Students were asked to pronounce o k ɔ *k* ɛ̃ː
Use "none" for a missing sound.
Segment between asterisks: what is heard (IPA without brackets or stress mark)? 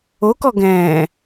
ɡ